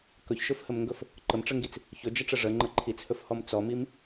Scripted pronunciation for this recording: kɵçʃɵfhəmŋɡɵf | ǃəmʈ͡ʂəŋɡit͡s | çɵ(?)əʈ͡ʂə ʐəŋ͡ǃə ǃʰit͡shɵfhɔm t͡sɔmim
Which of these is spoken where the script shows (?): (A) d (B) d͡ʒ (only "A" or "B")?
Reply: B